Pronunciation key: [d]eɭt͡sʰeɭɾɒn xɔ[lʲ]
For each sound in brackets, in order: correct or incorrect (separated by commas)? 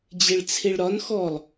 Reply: incorrect, incorrect